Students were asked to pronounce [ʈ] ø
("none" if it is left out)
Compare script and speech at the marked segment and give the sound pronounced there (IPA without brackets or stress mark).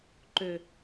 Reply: ǃ